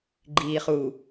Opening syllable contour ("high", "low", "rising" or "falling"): low